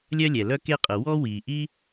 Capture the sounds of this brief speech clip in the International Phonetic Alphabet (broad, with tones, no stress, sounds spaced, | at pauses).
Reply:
lʲ œ˥ lʲ ɛ˩ l œ˥ k e˥ qʼ ə˩ w ɔ˥ w i˩ ʔ i˥